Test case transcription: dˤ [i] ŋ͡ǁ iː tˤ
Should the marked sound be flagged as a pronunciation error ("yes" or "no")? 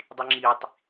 no